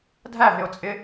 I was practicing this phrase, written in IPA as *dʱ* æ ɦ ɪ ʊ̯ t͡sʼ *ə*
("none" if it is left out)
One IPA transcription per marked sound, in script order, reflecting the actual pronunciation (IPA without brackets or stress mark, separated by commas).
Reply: dʱ, ɪ